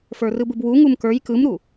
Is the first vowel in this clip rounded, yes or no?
no